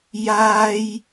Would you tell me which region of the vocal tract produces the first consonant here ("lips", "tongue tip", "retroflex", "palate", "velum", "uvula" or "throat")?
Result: palate